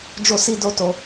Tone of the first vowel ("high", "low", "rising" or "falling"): high